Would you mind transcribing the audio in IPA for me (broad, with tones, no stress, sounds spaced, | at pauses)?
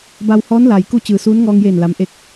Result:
b a˧ w h ɔː˧˥ n l a˩ j k u˥˨ t͡ɕ ɯː˩ s uː˧˥ n ŋ ɔː˧ ŋ j eː˧˩ n l a˩˧ m ʔ e˧ k̚